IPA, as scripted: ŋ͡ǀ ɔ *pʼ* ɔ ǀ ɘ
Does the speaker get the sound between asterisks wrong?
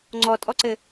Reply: yes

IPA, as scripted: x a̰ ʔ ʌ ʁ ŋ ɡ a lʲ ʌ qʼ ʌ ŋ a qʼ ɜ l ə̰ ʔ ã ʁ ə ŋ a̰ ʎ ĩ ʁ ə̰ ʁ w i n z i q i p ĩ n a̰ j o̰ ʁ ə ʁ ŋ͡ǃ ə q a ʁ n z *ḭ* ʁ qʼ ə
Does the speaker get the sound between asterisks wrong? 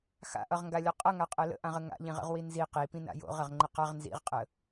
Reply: no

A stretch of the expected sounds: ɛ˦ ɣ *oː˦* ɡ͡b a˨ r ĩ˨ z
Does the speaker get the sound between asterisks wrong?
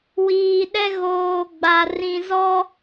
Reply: yes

